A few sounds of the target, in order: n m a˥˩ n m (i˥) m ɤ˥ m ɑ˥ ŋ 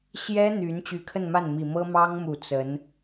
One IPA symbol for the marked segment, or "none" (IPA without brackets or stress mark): i˨˩